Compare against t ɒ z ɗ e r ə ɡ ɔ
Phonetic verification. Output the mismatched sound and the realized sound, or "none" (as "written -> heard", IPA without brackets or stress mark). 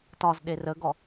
none